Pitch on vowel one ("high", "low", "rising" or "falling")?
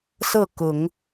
falling